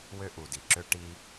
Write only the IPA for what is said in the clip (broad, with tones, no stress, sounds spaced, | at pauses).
w ø˥ ʔ u˨ d i˨ ǁ ø˦ ʈ i˦